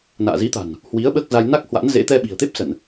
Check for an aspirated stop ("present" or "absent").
absent